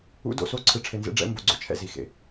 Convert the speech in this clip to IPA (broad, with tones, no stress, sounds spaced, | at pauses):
ṵ˨˦ d o̰˨ s o˦ ǀʰ ɯ˨ ʈ͡ʂʰ e˨ n z ḛ˦ ɖ͡ʐ ɛ̰˦ m b o˨ ɡ͡ǀ o̰˦ t͡ʃʰ ɛ̰˨ z i˨ x ḛ˨